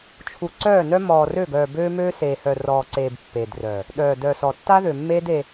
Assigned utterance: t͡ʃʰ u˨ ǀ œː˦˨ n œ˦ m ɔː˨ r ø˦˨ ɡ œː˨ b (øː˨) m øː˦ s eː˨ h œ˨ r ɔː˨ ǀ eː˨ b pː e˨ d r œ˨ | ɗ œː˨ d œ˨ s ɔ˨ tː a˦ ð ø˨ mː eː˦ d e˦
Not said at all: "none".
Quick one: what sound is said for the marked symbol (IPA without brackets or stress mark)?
øː˦